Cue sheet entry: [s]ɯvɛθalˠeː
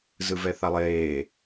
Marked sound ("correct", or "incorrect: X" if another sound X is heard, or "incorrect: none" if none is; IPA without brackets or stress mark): incorrect: z